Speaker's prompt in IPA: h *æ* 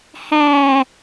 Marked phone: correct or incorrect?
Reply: correct